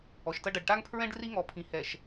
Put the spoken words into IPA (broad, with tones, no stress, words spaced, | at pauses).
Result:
ɔ˨ʃtɐ˦ ɖɐ˨ɖʈa˦ŋpʰɹɛ̃˦ɖ ri˦ŋɔ˨pʰĩ˨hɛ˨ʃ